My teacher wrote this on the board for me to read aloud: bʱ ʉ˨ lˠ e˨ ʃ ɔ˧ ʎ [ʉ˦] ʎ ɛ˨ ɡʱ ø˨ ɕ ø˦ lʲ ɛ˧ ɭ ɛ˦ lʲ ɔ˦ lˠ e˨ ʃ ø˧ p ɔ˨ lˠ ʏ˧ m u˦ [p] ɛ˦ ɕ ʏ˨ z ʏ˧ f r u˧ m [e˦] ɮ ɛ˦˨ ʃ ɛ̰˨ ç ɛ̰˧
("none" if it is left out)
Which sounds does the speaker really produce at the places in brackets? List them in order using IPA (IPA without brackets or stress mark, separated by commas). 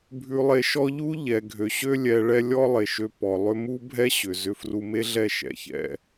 u˦, bʱ, e˦